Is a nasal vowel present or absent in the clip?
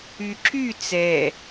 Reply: absent